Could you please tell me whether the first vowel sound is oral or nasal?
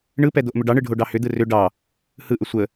oral